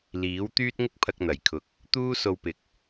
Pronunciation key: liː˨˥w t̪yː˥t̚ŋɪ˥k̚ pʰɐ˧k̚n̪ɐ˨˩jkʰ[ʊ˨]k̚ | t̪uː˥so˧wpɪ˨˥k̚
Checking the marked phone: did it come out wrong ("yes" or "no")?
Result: no